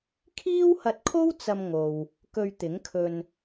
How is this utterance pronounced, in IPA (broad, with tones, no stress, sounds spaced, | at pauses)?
kʰ iː˥ w h ɐ˧ t̚ kʰ o˥ w t͡s ɐ˧ m ŋ o˨ w | k ɵ˧ ɥ t̪ ɪ˨˥ ŋ kʰ ɵ˧ n